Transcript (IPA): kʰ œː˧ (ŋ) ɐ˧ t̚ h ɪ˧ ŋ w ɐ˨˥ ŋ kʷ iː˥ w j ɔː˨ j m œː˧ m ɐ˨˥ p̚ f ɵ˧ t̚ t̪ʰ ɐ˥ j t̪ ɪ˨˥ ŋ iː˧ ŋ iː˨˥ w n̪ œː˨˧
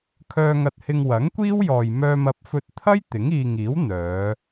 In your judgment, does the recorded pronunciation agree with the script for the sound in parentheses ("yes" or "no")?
yes